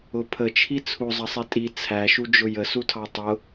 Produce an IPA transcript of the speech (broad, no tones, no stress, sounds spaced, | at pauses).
ʊ pʰ ə t͡ʃʰ i t͡sʰ u zˤ ʌ sˤ i tʼ i t͡sʰ æ ʃ u d͡ʒ ʊ j ə s u tʰ ɑ tˤ ʊ